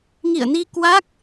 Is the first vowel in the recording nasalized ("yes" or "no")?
no